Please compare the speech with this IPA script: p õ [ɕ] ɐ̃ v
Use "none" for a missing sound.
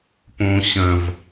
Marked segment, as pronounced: ɕ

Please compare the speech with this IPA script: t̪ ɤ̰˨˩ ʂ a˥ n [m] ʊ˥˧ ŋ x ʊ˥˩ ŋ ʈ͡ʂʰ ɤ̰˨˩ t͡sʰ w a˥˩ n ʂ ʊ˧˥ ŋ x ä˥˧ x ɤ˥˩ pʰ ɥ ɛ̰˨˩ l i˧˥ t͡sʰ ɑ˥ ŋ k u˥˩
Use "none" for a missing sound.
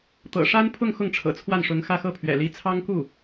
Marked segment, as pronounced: pʰ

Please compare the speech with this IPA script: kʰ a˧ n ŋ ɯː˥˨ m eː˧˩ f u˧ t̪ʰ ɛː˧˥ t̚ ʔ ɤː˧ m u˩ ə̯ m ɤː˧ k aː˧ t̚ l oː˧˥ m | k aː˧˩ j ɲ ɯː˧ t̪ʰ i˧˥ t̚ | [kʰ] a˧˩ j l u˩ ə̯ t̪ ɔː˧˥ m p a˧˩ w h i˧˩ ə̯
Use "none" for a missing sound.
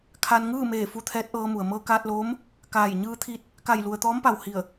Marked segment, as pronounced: k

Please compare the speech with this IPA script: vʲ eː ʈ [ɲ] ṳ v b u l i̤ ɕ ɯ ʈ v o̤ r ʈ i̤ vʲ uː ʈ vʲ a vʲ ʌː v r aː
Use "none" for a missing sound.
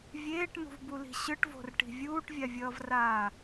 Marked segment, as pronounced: n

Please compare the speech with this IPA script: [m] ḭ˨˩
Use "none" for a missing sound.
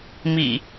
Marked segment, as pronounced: m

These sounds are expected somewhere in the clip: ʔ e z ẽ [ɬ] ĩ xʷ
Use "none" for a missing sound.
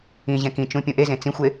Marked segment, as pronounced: t͡s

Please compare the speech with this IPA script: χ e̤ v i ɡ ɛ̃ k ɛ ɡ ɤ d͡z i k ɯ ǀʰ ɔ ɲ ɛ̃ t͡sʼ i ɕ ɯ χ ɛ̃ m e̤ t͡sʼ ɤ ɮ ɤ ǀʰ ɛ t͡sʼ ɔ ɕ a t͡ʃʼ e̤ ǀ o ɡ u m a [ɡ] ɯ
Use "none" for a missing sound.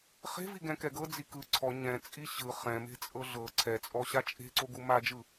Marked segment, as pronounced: d͡ʒ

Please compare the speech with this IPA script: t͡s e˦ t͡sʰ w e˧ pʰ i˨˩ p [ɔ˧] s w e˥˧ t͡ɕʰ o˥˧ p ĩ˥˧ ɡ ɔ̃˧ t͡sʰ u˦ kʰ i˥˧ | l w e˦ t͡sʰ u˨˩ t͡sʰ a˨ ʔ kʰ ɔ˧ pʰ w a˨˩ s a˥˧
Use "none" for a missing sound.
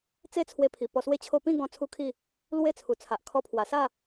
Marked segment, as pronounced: ɔ˧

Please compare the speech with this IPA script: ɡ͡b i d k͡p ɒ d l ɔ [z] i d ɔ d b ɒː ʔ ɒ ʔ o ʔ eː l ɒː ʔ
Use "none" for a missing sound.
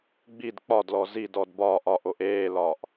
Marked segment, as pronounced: z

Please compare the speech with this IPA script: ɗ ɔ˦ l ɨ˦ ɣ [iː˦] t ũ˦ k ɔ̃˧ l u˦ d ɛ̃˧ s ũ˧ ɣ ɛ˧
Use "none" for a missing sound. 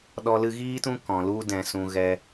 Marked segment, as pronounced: iː˦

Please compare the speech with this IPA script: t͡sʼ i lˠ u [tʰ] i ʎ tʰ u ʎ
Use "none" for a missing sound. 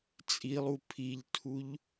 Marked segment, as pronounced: pʰ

